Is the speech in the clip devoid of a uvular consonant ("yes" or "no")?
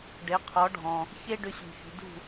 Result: no